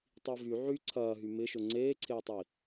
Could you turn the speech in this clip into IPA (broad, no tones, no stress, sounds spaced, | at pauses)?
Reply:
tˤ i v y ʕ y ǀʰ ɐː ɦ y m ɪ ʃ ʊ ŋ͡ǀ eː ǀʰ eː tˤ i